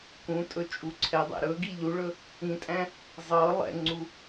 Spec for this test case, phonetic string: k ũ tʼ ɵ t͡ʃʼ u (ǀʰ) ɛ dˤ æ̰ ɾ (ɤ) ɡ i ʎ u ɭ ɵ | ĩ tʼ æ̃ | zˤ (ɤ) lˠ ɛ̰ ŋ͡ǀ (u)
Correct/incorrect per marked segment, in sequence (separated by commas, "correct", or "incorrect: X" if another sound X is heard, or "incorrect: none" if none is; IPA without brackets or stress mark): correct, incorrect: ɵ, correct, correct